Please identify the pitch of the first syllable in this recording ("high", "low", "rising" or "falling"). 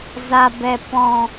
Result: low